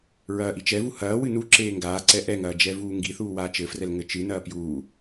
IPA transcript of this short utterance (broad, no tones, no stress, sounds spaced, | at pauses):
ɹ ɐː ʔ i t͡ʃ ɛ v u h ɐː w ɨ n u ǁ eː ŋ ɡ aː ǀ ɛ ʔ ɛ ŋ ɐː d͡ʒ ɛ v uː ŋ ɡ i θ uː w aː t͡ʃ ɘ f r ɛ l ŋ ɘ t͡ʃ ɨ n ɐː p j uː